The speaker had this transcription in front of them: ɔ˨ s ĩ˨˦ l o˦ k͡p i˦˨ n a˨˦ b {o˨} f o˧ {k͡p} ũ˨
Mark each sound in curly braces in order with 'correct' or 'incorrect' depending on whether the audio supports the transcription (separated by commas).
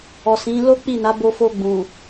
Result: incorrect, incorrect